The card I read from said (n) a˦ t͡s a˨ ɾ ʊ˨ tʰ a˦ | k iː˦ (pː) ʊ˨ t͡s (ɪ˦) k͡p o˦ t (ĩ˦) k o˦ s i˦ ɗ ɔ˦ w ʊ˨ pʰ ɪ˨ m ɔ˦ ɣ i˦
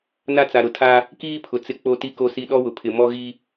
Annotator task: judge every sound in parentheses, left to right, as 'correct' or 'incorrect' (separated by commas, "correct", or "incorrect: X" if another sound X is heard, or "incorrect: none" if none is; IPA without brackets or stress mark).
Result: correct, incorrect: pʰ, correct, incorrect: i˦